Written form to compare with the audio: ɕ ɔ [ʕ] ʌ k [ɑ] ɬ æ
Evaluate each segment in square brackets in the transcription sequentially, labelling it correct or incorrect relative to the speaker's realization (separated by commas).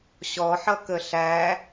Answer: incorrect, incorrect